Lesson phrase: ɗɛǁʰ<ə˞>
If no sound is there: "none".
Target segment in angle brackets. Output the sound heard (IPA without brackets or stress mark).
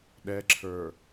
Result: ə˞